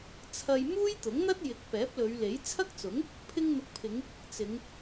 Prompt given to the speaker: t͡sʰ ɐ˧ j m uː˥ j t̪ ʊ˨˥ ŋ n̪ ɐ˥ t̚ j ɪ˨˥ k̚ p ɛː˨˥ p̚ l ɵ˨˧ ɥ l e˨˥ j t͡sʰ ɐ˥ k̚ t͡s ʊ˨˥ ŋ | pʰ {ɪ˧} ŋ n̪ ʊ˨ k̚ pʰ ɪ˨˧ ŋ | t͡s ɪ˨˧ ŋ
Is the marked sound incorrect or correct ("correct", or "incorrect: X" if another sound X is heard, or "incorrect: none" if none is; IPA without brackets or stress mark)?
correct